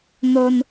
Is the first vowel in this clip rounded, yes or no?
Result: yes